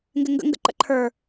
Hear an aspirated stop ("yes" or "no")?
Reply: yes